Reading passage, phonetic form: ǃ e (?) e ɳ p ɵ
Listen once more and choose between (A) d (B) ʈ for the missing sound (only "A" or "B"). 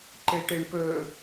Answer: B